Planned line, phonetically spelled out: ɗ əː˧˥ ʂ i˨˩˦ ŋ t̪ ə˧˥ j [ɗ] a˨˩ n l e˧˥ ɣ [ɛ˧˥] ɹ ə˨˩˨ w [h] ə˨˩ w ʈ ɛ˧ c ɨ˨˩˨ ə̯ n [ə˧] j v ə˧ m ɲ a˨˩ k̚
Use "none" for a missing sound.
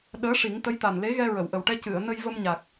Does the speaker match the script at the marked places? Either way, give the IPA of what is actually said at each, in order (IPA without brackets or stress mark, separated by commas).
t̪, ɛ˧, ʔ, ə˧